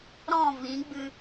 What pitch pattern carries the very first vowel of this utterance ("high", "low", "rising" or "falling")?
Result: falling